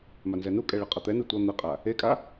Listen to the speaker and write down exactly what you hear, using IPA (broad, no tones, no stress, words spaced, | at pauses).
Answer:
manzɛnukʼɛ ɭɯqʼʌt̪ɛnɯ tʷʌ n̪ɯqʼa | ekʼa